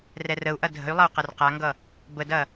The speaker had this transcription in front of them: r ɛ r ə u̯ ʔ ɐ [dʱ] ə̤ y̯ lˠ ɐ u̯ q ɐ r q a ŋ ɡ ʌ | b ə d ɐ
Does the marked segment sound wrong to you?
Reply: no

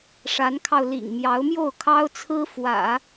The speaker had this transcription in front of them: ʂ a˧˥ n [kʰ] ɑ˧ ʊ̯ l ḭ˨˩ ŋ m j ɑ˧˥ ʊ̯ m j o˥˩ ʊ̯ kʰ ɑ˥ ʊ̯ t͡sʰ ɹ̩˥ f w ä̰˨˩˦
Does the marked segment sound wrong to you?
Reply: no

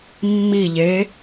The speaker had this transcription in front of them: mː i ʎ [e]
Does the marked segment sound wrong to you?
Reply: no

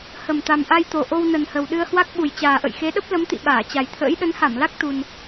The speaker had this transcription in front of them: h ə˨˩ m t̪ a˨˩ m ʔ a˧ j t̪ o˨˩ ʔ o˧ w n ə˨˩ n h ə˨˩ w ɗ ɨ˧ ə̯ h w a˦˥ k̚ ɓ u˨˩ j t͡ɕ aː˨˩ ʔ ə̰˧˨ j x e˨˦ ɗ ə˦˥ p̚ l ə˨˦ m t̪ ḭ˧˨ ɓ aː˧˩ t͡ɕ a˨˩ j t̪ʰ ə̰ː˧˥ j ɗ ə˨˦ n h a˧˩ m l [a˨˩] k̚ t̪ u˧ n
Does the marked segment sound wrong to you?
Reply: yes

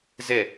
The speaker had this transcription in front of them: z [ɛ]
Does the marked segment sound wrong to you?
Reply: no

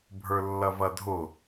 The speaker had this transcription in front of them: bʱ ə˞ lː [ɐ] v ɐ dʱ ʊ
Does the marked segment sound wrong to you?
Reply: no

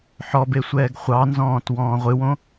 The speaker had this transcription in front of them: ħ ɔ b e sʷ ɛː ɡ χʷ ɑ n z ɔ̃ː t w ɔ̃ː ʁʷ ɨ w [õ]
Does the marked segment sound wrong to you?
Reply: no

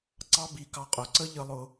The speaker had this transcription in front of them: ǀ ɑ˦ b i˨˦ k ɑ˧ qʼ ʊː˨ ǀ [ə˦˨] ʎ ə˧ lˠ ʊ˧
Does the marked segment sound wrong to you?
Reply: yes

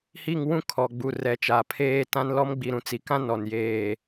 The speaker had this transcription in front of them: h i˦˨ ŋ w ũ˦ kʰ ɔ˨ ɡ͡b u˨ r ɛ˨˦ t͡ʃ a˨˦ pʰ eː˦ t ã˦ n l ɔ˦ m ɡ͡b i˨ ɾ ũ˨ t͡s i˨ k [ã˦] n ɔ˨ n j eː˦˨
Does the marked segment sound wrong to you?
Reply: no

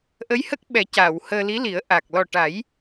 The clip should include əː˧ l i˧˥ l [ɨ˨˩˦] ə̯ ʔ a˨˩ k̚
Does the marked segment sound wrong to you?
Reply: yes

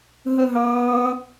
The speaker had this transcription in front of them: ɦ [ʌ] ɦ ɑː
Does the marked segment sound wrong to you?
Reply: no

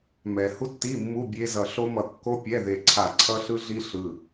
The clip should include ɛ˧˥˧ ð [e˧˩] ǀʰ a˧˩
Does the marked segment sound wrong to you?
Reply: no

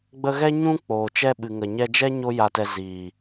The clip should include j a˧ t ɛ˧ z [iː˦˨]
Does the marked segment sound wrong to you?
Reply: yes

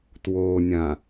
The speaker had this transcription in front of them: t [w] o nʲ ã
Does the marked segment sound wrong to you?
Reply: no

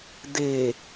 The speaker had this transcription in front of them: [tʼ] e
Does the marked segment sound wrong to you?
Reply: yes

